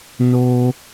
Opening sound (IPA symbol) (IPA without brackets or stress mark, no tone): n